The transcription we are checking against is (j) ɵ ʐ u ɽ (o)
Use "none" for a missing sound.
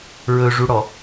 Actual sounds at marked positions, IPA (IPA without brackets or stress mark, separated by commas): ɹ, ɔ